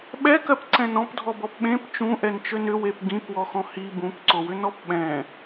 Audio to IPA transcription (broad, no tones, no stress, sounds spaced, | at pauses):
ɓ ɛ k ɜ p ǀ ɛ̃ n ɔ̃ p dʱ ɔ b ɔ p ɓ ẽ p t͡ʃ ũ ʔ ɛ n t͡ʃ ø n ʏ w e p ɡ ĩ p w ɔ x ɔ̃ h i b ũ p ǀ o w ʏ n ɔ p ɓ ɛ̃